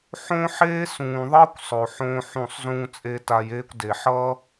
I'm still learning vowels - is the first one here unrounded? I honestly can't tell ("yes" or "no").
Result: no